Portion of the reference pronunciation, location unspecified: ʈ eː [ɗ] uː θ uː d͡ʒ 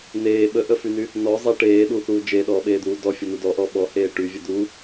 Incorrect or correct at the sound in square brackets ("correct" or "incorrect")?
correct